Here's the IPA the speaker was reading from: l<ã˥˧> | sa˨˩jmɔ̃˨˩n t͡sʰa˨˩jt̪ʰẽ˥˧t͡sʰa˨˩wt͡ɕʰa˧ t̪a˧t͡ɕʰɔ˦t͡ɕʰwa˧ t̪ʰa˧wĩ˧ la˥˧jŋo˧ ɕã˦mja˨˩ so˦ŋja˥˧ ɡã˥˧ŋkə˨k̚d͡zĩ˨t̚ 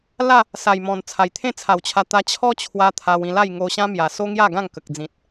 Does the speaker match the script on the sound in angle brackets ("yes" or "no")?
no